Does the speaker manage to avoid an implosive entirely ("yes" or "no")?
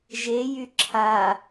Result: yes